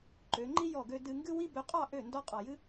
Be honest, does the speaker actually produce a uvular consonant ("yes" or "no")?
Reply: yes